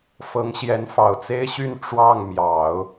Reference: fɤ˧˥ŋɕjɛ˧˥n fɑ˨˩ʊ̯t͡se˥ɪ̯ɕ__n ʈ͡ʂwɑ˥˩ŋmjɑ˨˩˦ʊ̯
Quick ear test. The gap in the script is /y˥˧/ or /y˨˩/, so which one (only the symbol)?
y˥˧